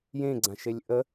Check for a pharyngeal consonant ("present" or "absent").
absent